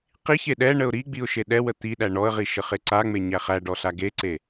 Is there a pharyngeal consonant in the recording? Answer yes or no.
no